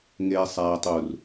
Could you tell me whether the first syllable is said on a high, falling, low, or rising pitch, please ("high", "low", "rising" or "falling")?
low